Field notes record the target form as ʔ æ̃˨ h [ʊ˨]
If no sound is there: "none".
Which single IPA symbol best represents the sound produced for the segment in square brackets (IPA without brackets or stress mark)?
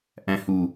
u˨